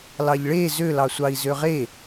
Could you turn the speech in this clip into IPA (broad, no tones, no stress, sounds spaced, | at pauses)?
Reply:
l ɑ ʎ ɭ e z ø l ɑ sʷ ɑ i̯ z ø ʁ e